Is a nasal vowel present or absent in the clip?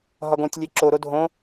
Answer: present